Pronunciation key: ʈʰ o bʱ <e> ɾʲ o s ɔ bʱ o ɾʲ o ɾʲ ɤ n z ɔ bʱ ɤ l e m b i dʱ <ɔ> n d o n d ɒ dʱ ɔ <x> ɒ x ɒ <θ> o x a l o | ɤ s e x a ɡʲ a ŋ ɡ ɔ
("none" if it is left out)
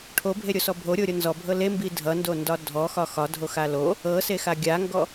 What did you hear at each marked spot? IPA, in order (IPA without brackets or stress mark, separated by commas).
e, ʌ, x, dʱ